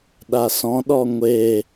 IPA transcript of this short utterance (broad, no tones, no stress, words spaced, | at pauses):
ɗasɔ̃ɗɔ ŋʷe